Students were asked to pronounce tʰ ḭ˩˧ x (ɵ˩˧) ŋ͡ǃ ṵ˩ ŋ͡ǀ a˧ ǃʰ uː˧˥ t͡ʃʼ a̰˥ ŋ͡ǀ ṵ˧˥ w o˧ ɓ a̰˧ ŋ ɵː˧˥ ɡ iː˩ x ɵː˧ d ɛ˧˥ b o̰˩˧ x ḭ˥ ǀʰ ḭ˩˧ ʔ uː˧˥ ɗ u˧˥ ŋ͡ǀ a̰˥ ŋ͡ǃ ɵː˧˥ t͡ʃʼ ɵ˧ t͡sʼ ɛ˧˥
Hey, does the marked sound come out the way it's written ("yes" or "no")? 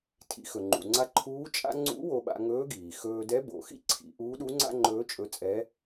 no